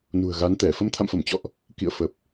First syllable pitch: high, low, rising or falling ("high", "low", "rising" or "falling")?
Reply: low